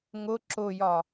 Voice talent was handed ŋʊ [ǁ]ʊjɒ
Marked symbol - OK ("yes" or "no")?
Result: yes